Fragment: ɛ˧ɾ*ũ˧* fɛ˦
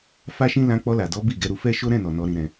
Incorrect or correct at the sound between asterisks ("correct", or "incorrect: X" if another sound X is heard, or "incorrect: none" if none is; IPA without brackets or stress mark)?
incorrect: u˧